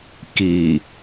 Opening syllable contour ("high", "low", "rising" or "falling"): low